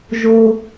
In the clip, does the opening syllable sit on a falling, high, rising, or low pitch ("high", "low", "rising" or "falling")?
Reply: high